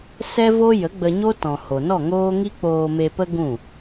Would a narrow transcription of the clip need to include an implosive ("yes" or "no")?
no